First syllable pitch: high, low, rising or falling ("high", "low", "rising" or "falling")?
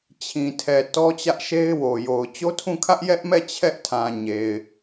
low